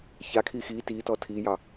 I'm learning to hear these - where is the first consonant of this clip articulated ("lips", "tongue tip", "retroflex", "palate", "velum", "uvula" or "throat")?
palate